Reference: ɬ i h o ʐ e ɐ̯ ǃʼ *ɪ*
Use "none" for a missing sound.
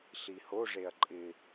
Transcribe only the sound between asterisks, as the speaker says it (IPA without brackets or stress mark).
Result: ɪ